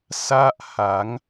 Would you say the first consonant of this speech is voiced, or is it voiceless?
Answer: voiceless